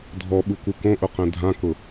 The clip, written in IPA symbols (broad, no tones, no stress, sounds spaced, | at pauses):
dʱ ɔ ɓ u k u k õ ʔ ʊ q ɛ̃ dʱ ã k ʊ